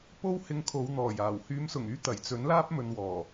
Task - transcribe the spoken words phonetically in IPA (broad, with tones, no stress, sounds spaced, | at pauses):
p o˥ w h ɪ˧ ŋ kʰ o˨˧ w n̪ ɔː˨˩ j aː˨˩ w h yː˨˧ m s ʊ˨˩ ŋ yː˧ t̪ ɐ˨˩ j t͡s ɵ˨˥ n l aː˥ p̚ m ɵ˨ n w ɔː˨˩